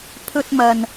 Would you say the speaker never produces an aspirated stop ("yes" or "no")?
no